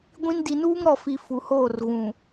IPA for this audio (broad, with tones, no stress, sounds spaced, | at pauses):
ɡʷ ĩ˦ n d i˨ n uː˦ ŋ ɾ ɔ˨ f i˨ f u˨ h oː˦˨ r ɣ ũ˨